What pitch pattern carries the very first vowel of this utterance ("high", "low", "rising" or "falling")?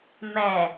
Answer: low